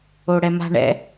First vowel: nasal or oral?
oral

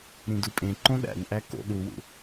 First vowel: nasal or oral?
nasal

